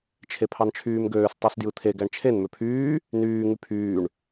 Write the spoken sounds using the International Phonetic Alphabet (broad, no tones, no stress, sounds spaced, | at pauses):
t͡ʃʰ e pʰ ɑ n t͡ʃʰ yː m ɡ øː s tˤ æ s d j ɯ t̪ʰ e ɡ æ ɳ t͡ʃʰ e n m ø pʰ yː | n yː ŋ y pʰ yː ɳ